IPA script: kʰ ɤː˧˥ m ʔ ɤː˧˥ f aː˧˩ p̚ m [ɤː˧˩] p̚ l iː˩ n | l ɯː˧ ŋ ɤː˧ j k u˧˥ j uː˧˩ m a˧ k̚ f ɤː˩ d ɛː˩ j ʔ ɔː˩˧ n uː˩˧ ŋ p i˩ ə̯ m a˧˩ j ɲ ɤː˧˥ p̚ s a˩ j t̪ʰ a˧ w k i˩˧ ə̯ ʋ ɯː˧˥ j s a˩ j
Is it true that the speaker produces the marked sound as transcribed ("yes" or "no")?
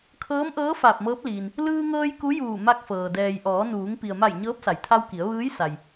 no